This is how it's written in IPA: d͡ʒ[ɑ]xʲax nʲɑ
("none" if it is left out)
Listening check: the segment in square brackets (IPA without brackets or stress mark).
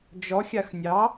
ɔ